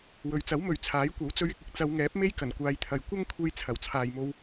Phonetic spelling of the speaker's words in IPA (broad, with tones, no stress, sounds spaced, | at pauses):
w ɵ˨ ɥ t͡s ɐ˨˥ w m ɵ˨ ɥ t͡sʰ aː˨˥ j kʷ ɐ˨˥ w t͡s ɵ˧ ɥ ɪ˧ k̚ ɪ˨˥ k̚ t͡s ɐ˨˧ w ŋ ɛː˨˥ p̚ m e˥ j k ɐ˨˩ n kʷ aː˨˧ j t̪ʰ ɐ˨ j kʷ ɐ˥ ŋ kʷʰ e˧ j t͡sʰ ɐ˨˩ w t͡sʰ aː˨ j m o˧ w